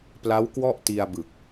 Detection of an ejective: absent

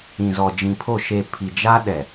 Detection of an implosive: present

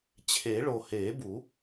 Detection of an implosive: absent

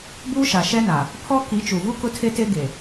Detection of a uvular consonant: absent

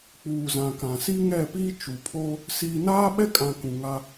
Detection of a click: absent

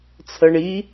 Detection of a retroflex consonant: present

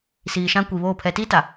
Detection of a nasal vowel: present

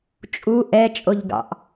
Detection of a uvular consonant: absent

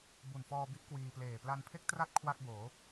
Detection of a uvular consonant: absent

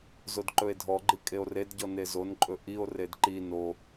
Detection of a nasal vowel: absent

